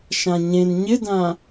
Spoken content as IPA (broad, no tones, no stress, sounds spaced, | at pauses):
ʃ ã ɲ ẽ n ɲ ɪ d ã